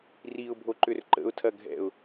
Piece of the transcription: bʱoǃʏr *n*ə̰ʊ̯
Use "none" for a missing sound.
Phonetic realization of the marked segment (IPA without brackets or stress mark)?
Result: ǃ